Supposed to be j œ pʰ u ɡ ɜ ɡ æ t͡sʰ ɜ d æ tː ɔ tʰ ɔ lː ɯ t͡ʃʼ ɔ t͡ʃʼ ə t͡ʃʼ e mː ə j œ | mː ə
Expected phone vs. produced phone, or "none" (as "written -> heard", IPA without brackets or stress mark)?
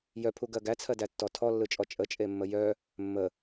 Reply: none